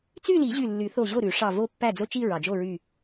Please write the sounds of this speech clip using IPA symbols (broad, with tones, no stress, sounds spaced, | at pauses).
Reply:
t͡s y˥˧ l i˨˩˦ ʑ y˧˩ lː y˨˩˦ θ o˧˩ ʑ o˥˩ ɾ ʉ˨˩˦ ʂ ɑ˧˩ v o˥˧ pː æ˥˩ d͡z o˥˧ t͡ʃ i˥˧ ɹ ɑ˩ d͡ʒ o˥˩ ɹ y˧˩